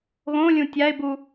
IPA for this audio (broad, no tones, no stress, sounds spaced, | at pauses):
ɣ õ lʲ ũ tʲ a ɪ̯ b u